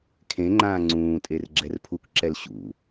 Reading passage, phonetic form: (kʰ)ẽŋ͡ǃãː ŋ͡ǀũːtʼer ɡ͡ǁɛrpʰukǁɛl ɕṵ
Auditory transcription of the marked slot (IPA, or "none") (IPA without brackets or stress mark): kʰ